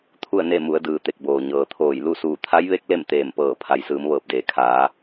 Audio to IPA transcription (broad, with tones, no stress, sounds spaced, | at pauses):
t̪ʰ u˥˨ ə̯ n e˥˨ m u˩˧ ə̯ d ɯː˩ t̪ e˧˩ k̚ b oː˩ ɲ ɤː˩ t̪ʰ oː˧˩ j l u˥˨ s uː˧˩ t̪ʰ a˧˥ j ʋ e˧˥ k̚ l e˥˨ m t̪ eː˧˩ m p ɤː˧˩ pʰ a˩˧ j s ɯː˩˧ m ʋ ɤː˧˩ p̚ d eː˩ kʰ aː˩˧